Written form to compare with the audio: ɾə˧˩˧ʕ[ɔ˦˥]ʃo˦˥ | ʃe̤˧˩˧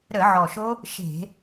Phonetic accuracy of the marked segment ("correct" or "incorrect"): incorrect